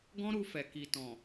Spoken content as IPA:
ɡ ɔ̃˦ ɾ u˧ f ɛ˨ k i˨ t ɔ̃˨

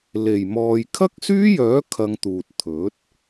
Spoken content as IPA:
l e˨˩ j m ɔː˨ j kʰ ɐ˥ k̚ s yː˥ j œː˨˥ kʰ ɐ˧ ŋ t̪ uː˨ t̚ t̪ʰ ɵ˨˥ t̚

